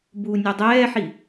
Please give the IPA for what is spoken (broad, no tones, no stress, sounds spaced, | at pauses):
b uː nʲ ɔ dˤ ɛː ħ i